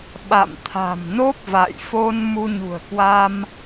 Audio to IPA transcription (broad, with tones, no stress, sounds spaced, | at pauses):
ɓ a̰˧˨ m t̪ʰ a̤˨˩ m n o˦˥ p̚ v a̰˧˨ j f o˧ n m u˧ ɲ ṳ˨˩ ə̯ k w a˧ m